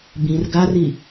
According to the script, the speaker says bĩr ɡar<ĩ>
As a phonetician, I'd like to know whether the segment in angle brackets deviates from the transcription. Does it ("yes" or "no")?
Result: yes